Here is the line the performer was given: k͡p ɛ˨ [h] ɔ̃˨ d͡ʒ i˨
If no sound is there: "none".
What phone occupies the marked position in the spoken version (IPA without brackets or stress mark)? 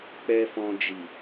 f